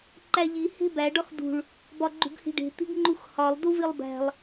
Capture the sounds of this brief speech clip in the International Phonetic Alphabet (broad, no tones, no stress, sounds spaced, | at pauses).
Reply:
ǃ æ ʎ i h e̤ b æ ɖ ɒ x d ṳ ɭ | b ɒ ɡ͡ǃ ṳ ɡ h i̤ ɖ e̤ t̪ i̤ ɡ ŋ͡ǃ u x h ɒ lˠ d u v i lˠ b æ̤ lˠ